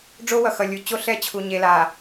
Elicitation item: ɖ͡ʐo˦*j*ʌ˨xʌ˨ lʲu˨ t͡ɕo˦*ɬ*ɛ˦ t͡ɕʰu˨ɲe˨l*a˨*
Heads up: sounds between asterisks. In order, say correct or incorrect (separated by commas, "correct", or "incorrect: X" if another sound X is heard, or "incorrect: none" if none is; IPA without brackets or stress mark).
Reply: incorrect: w, correct, correct